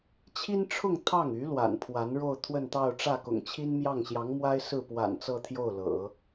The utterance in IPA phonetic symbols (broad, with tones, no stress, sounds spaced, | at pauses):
t͡ɕʰ i˥ n ʈ͡ʂʰ ʊ˥˧ ŋ t̪ʰ ɑ˥˩ ŋ y˧˥ l w a̰˨˩ n pʰ w a˧˥ n ɻ o˥˧ ʊ̯ t̪ʰ w ə˥˧ n t̪ ɑ˥˧ ʊ̯ ʈ͡ʂ ä˥˩ k ʊ̰˨˩ ŋ t͡ɕʰ i˥ n m j ɑ˥˩ ŋ ɕ j ɑ˧˥ ŋ m w a˥ ɪ̯ s ɹ̩˥˩ p w a̰˨˩ n t͡s ɤ˥˧ t̪ʰ j o˥˩ ʊ̯ l ɤ̰˨˩˦